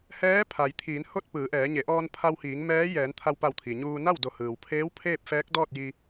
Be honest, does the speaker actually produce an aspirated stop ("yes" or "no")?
yes